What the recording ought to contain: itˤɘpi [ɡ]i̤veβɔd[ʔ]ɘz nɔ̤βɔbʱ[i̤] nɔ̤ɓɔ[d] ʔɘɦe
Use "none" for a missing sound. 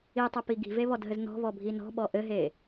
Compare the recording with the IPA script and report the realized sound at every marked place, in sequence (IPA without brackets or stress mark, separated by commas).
ɡ, ɦ, i, none